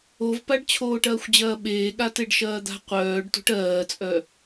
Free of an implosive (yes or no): no